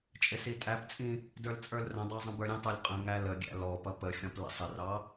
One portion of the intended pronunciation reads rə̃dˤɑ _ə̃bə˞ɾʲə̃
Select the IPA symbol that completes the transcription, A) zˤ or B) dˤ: A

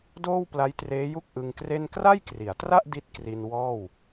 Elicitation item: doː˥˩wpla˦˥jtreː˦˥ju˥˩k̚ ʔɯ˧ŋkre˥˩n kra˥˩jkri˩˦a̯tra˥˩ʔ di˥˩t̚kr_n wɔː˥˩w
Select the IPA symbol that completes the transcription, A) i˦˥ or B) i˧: B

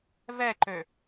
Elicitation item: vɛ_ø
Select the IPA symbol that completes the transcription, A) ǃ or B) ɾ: A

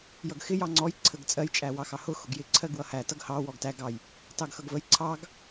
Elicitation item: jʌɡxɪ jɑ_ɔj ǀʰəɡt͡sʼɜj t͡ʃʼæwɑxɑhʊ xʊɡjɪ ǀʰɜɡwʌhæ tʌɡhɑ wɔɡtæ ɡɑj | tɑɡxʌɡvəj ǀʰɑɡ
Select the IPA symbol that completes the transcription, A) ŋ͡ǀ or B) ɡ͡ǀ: A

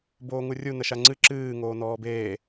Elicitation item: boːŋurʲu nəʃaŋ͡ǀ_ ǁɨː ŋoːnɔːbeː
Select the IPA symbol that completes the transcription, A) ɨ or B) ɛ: A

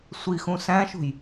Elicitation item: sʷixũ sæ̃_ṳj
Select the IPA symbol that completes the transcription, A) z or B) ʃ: B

